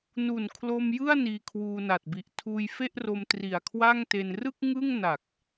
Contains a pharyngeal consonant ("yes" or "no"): no